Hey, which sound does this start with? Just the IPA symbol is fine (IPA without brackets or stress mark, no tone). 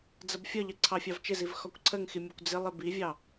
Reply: d͡z